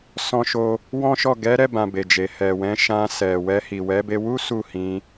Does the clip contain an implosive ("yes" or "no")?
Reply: no